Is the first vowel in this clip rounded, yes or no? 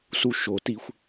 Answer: yes